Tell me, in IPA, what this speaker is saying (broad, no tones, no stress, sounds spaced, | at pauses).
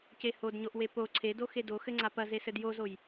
c e h o d ɲ o ʔ w e p o ǀʰ e d o x e d o x ɘ ŋ͡ǀ a p ɐ z e s ɘ d j o z o j